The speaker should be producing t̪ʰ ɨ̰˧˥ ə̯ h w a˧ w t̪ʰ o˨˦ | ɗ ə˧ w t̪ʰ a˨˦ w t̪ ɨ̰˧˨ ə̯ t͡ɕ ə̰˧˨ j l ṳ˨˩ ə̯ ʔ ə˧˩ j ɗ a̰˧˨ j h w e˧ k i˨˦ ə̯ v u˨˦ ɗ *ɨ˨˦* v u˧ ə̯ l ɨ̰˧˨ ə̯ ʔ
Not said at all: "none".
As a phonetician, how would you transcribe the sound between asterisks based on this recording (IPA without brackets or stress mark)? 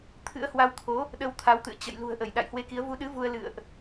ɨ˨˦